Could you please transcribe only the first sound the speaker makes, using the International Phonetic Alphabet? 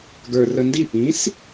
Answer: ɡ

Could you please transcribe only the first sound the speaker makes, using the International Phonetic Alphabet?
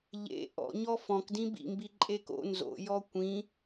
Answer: ʎ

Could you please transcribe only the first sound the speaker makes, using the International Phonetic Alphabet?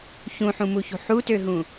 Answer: ç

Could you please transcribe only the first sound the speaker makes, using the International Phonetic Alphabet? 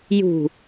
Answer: j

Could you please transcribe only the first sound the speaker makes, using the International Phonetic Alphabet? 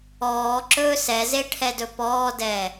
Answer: ɔː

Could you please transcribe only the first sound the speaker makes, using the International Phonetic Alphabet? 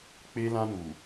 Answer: k͡p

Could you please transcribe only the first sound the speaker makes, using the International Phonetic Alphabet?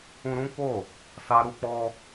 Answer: ũ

